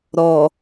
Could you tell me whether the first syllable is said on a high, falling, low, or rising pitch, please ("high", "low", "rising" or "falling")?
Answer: low